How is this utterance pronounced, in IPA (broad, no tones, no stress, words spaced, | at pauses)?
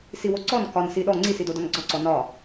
siwoǀɔn kɒn siɗɔ ŋ͡ǀisidodɒn ɡ͡ǀɒǀɔ nɒ